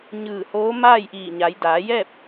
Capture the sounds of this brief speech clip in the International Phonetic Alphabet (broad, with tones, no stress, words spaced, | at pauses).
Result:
ɲɯː˧˩hoː˧˥ maː˥˨jʔiː˧˩ɲa˩˧j daː˩˧jɛː˥˨p̚